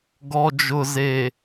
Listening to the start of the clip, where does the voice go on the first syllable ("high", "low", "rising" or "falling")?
low